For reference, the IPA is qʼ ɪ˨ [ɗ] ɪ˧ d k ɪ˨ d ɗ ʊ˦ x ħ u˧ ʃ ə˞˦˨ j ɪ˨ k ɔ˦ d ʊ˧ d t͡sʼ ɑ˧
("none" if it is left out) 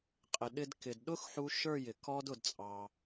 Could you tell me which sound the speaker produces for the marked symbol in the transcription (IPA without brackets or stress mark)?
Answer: ɗ